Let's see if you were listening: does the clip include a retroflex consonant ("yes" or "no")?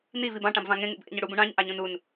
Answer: yes